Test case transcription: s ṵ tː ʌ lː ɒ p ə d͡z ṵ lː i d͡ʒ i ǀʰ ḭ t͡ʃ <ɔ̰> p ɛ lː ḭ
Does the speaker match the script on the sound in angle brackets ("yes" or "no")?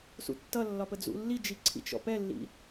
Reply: yes